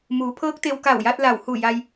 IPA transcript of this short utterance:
muː˩˧pʰɤː˧˥k̚ t̪e˧wka˧˩wja˧t̚ la˧˩whu˧˩ja˧j

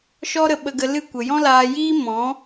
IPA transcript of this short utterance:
ʃɔ˦ɾə˧ɓə˧ɡə˧ lɨ˦˨ kʷə˨jɔ̃˦laː˧jiː˦ mɔ̃˨˦

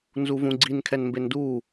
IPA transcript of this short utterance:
nzuvũɡ͡ǀin kʰɛnmbendu

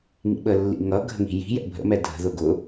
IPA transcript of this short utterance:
ŋḭɓəlːḭŋʌ ɡʱə̤ŋi̤ji̤jɛ̰ bʱə̰mɛ dʱə̤ðʊ ɡʊ

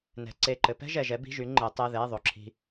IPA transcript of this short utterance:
nɛ̤˨˥ ǀe˧˥˧ǃɘ˨˥ pɛ̤˥ʒɛ˨ʒɛ˨˥ bi̤˧˥˧ʒy˨˥ ŋ͡ǃɘ˨˥tˤɛ˧˥˧ðɛ˧˥˧ ðˤo˨ǁʰi̤˥

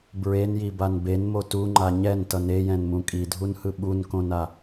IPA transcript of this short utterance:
bɹenjiban benmo tuŋ͡ǃa ɲɛntʌn ejɛ̃nmũ kʼidʱunhɯ ɓunkõna

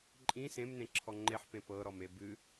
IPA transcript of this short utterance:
ǃʼĩ sẽmnẽ ǁʰɔŋ͡ǃeħpẽ pɤɾɔme bɨ

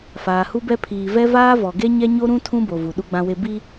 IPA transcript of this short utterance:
faː˨hu˦bɛ˦ pʰiː˨vɛ˦ vaː˦vɔ˨ɡe˦ ɲɛ˦ɲo˦ɾũ˦ tʰũ˦bo˨ vu˨ɗu˦ɡ͡bã˦we˦ bi˦

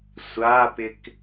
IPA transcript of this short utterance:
sʷapɪk

